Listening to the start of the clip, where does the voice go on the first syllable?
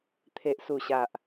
low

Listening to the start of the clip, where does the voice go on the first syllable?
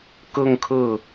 falling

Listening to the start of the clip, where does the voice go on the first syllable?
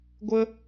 high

